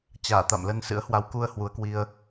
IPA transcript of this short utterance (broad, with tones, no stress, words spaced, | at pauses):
t͡ɕaː˧˩t̪a̰˧˨m lə˧nsɨ̰˧˥ə̯ hwa˨˦wku˧ə̯ hwu˨˦ə̯kwi˧ə̯